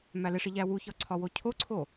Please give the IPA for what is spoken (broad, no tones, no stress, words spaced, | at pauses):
mæleʂi ʎæwuçɒ ǀʰɒwocʰoǀʰo